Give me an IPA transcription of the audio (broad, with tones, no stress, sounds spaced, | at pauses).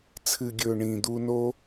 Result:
t͡sʰ ɨ˨ ɡʲ ɵː˨ ɳ ĩː˨ d̪ u˧ n o˦